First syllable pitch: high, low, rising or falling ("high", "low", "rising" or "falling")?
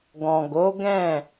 low